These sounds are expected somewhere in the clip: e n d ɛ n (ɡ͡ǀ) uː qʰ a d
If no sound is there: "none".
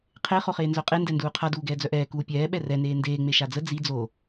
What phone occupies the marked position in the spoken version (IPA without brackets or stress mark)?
d